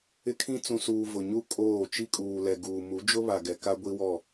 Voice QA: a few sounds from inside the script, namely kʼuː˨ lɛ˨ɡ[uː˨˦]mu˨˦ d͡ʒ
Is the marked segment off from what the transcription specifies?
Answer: yes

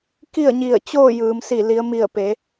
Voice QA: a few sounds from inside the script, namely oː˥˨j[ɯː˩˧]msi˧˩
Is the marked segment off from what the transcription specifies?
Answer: no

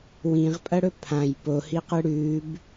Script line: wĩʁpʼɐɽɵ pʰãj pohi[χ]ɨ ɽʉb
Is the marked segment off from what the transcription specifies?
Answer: yes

